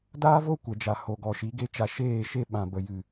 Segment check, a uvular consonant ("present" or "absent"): absent